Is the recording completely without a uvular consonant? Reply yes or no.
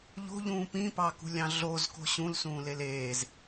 yes